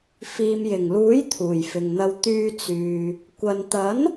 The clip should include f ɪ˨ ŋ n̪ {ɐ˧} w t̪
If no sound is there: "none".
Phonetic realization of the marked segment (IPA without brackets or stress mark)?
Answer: ɐ˧